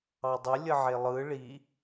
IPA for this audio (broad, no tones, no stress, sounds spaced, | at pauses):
ɑ dˤ ɪ lʲ ə ʕ e lˠ ɯ ɭ i